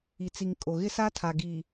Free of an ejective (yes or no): no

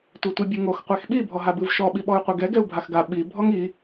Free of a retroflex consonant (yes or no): yes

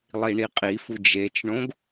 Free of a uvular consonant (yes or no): no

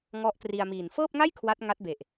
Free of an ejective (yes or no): yes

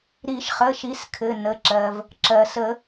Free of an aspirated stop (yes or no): no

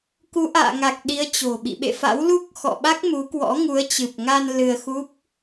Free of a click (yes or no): yes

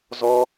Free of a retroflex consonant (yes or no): yes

